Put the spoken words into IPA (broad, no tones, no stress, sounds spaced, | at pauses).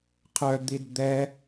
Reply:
qʰ œ d̪ i d d̪ ɛ